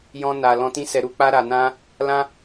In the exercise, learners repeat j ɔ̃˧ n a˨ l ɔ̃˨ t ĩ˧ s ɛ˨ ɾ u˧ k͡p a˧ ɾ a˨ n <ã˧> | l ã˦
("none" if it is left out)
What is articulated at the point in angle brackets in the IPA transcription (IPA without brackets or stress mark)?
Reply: ã˧